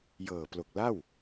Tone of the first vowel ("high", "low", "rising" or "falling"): low